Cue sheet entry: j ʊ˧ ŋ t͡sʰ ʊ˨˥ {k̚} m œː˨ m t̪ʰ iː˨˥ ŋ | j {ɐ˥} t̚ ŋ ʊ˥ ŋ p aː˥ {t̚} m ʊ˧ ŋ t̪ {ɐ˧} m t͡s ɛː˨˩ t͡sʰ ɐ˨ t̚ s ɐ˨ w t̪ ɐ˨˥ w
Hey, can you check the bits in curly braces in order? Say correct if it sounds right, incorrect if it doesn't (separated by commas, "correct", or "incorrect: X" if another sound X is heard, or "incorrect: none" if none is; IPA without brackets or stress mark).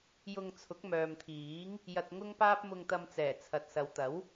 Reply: correct, incorrect: ɐ˨, incorrect: p̚, correct